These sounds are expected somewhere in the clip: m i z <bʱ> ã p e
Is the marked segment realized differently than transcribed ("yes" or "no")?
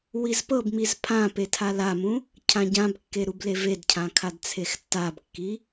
yes